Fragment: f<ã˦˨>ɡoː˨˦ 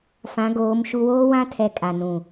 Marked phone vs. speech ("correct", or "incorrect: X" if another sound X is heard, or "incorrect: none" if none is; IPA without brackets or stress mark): incorrect: ã˨˦